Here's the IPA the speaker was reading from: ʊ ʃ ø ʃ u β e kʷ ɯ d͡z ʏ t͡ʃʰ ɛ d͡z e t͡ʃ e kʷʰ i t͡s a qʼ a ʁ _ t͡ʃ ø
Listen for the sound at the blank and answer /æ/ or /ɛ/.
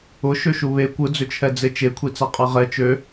ɛ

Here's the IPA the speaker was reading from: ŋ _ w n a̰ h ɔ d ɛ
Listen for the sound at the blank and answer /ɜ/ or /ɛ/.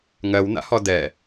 ɜ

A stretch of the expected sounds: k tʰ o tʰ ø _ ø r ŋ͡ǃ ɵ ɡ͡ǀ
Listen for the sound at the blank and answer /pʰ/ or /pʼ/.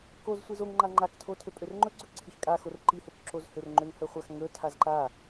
pʼ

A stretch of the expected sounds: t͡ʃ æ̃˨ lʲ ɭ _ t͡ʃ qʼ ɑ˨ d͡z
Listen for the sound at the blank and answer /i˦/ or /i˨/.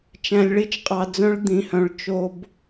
i˦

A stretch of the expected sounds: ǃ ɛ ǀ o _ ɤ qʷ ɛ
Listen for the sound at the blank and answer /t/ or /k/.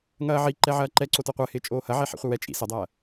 t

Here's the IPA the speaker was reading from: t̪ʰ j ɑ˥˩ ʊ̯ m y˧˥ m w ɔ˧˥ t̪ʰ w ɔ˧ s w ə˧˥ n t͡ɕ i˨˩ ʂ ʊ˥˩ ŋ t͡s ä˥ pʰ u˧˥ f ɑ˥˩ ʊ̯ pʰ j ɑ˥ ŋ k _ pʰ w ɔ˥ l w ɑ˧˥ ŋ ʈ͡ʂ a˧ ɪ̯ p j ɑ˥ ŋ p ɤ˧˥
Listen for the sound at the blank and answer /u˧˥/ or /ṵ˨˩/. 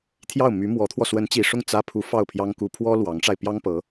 u˧˥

